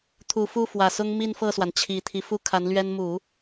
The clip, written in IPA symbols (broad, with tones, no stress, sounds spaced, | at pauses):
t̪ʰ u˨˩ f u˥˩ f w ä˨˩ s ʊ˥ ŋ m i˥˧ n f ɤ˥˩ s w a˩ n t͡ɕʰ i˨˩ t̪ʰ i˦ f u˥ kʰ a˧˥ n l ɥ ɛ˥ n m u˨˩˦